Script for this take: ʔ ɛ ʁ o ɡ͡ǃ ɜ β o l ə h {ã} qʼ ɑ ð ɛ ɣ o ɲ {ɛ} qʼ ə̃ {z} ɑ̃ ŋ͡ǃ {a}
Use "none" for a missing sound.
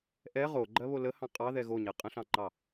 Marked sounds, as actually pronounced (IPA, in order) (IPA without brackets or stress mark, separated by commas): ɑ̃, ɛ, ɬ, ɑ